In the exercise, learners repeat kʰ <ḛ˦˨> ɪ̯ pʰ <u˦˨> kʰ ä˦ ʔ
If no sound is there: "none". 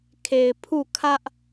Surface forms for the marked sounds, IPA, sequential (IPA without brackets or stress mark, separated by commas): e˨, u˦˨